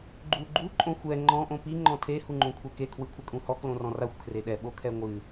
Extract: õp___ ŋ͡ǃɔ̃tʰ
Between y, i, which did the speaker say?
i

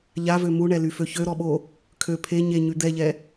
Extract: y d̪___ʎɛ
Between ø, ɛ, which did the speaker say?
ɛ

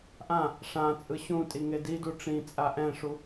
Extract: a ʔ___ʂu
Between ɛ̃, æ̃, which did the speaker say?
ɛ̃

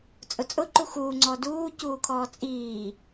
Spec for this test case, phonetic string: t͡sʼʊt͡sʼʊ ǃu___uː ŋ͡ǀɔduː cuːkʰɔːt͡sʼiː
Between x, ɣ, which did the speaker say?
x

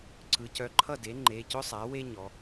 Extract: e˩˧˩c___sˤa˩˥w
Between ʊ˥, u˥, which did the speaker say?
ʊ˥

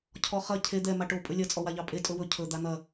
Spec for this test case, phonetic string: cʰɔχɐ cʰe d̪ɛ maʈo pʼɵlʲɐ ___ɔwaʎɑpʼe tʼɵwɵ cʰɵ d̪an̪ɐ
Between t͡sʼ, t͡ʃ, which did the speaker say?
t͡sʼ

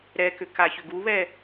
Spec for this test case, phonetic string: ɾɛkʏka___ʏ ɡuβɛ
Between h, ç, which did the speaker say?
ç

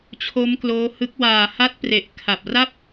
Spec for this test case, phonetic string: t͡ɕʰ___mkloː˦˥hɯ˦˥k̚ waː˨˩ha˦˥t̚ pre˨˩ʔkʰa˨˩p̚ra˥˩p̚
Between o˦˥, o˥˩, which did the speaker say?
o˦˥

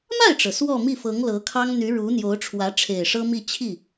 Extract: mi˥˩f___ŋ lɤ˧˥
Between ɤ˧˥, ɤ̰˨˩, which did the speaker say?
ɤ˧˥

